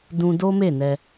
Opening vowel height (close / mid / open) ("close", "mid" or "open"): close